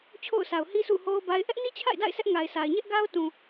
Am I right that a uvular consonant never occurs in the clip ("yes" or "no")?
yes